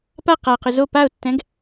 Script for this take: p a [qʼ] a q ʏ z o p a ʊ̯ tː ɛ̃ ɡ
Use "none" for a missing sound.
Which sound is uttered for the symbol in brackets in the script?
q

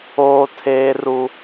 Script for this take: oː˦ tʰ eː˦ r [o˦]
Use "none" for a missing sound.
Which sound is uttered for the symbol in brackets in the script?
u˦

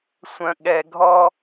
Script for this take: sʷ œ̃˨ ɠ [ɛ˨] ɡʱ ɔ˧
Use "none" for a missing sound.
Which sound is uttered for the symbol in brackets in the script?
ɛ˨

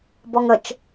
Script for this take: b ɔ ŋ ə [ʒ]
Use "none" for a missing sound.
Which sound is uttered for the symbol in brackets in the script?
t͡ʃ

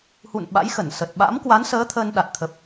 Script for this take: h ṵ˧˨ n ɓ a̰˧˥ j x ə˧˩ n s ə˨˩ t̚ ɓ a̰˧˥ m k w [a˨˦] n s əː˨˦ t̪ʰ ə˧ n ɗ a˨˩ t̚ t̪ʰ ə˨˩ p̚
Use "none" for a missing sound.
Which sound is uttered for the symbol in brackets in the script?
a˨˦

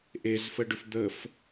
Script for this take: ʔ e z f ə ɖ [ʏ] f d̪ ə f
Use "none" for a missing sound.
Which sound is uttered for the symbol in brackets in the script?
ʏ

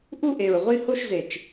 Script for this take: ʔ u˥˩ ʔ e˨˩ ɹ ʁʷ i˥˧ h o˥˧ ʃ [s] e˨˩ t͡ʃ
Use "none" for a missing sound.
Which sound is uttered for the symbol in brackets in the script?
z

